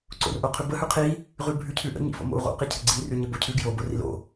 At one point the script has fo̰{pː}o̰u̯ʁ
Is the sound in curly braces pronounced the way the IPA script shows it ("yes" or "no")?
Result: no